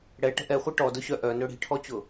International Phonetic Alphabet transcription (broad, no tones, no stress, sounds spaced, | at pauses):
ɽ ɛ ʈ ə̤ ʔ ɛ χʷ e ʈ ɔ d ʊ ɕ œ ʔ œ n ɵ ɽ i̤ ʈʰ ɔ t͡ɕ ʊ